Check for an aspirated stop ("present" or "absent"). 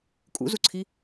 present